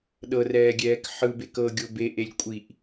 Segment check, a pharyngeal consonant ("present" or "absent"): present